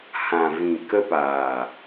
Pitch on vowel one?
low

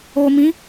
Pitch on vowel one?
low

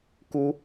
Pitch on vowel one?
high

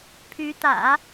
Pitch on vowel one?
rising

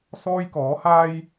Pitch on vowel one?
high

